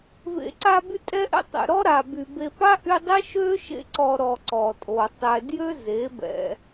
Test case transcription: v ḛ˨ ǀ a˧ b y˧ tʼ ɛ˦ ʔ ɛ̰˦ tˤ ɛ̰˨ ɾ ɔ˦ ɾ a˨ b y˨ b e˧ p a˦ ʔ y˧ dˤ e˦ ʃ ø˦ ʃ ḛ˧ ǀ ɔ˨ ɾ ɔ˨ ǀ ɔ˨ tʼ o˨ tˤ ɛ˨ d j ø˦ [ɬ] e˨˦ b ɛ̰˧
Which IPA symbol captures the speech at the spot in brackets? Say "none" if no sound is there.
z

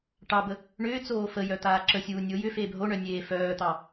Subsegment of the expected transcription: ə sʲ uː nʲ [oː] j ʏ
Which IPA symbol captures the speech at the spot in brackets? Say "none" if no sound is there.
o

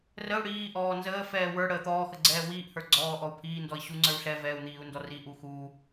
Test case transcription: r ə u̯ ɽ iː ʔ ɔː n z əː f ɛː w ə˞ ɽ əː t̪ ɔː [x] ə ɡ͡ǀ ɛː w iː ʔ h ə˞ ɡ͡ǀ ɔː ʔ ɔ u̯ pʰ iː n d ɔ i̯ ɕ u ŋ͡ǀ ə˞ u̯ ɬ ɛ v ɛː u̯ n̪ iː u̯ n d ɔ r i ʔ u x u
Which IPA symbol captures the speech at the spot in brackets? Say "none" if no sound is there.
x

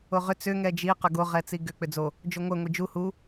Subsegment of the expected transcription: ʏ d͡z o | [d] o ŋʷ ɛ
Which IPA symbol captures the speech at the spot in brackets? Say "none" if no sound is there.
d͡ʒ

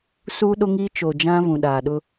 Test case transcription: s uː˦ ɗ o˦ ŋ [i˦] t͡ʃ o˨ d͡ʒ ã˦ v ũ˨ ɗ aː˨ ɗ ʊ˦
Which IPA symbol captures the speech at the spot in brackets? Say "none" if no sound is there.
i˦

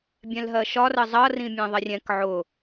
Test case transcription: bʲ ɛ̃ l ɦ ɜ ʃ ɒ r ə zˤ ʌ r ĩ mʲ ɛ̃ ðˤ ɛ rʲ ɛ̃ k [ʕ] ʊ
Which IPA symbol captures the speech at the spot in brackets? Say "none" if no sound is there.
ʕ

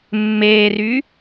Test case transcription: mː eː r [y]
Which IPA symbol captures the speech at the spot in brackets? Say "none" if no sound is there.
y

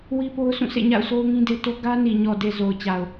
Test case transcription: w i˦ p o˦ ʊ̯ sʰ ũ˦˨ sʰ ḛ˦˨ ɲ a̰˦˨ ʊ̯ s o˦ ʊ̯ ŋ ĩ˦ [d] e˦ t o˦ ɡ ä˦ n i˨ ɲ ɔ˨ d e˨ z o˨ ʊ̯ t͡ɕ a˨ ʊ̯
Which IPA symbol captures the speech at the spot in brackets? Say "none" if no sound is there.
d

